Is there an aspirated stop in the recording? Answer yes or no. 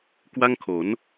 yes